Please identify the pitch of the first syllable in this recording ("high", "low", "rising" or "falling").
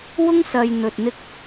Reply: high